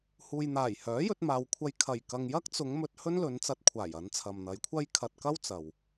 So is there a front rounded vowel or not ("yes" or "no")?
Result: yes